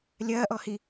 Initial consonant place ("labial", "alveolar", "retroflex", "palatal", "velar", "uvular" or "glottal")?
alveolar